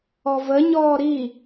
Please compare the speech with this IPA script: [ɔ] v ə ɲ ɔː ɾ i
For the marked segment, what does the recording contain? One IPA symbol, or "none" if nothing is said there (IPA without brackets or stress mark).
ɔ